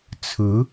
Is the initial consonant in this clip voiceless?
yes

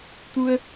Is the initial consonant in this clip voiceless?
yes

